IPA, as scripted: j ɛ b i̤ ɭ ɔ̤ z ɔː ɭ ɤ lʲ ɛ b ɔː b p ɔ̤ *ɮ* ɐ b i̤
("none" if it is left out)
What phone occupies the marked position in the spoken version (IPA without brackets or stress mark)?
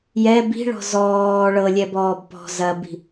z